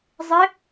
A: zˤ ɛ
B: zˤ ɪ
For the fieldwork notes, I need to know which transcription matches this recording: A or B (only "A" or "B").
B